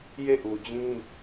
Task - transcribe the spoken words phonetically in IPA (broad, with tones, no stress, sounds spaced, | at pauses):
j e˦˨ ʔ u˨ d͡ʑ ĩ˦